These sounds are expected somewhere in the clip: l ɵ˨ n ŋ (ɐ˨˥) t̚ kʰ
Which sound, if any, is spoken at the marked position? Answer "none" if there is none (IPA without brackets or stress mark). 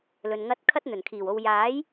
ɐ˧